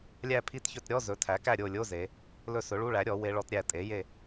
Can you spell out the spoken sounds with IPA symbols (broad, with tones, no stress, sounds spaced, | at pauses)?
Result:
lʲ æ˦˨ pʰ i˧˥˧ t ç ɵ˦˨ t ɾʲ ɔ˧˥˧ z ɵ˩˥ tʰ æ˩˥ k æ˦˨ ɾʲ o˦˨ lʲ o˧˥˧ z e˩˧ | l ɵ˦˨ s ɵ˩˥ ɭ u˧˥˧ ɭ æ˩˥ ɾʲ ɔ˩˥ w e˦˥ ɭ ɔ˦˥ t ɾʲ æ˦˨ tʼ e˩˥ j e˦˨